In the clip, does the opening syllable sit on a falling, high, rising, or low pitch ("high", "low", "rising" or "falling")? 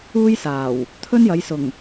high